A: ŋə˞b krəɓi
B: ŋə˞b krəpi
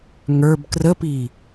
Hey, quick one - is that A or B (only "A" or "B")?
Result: B